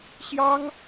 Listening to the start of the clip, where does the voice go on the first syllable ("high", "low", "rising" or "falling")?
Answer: high